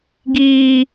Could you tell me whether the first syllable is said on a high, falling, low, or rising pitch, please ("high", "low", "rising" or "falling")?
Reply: high